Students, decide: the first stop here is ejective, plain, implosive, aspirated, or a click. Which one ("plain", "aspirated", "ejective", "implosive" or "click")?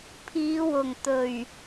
aspirated